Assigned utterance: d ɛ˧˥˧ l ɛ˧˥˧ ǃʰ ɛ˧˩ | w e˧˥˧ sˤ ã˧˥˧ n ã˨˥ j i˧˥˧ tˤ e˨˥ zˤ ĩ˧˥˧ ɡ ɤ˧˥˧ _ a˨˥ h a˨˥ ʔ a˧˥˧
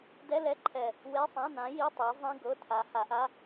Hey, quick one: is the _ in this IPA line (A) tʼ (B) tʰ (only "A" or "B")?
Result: B